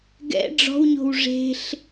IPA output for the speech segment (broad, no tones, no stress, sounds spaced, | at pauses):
ɡ ɛ̰ ɖ͡ʐ ɔ̤ w ɲ o̤ w ʐ e̤ ɬ